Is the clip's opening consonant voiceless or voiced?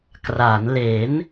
voiceless